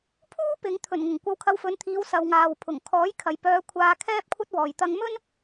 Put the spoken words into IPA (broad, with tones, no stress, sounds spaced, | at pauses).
pʰ uː˥ p ɪ˨˧ ŋ t̪ʰ ɵ˨˩ n ŋ ʊ˨˩ ŋ kʷ ɐ˧ w kʰ ɐ˧ w f ɵ˨˧ n t̪ʰ iː˨˧ w s ɐ˨ w ŋ aː˨ w pʰ ʊ˨˩ ŋ kʰ ɔː˨˥ j kʰ ɐ˨ j p œː˧ kʷʰ aː˧ kʰ ɛː˥ p̚ kʷʰ ɐ˥ t̚ w ɔː˨ j t̪ ɐ˧ ŋ m ɵ˥ n